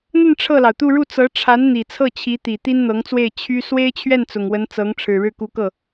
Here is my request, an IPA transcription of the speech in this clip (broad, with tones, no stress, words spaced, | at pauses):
n̪ə˥˧n ʈ͡ʂʰɤ˥˩lɑ˩ʊ̯t̪u˥˧ ɻu˥˩ t͡sɤ˧˥ʈ͡ʂʰa˧˥n n̪i˨˩ t͡sʰɤ˥˩t͡ɕʰi˧˥t̪i˨˩ t̪i˥nn̪ɤ˧˥ŋt͡swe˥˩ɪ̯ t͡ɕʰy˥ swe˥ɪ̯t͡ɕʰɥɛ˥˩n t͡sʊ˨˩ŋwə˧˥nt͡sɤ˧˥ŋ ʈ͡ʂʰɻ̩˨˩ɻɻ̩˥˩ku˧˥kɤ˥˩